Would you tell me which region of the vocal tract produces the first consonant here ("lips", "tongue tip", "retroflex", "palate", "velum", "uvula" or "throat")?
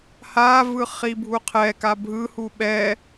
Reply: throat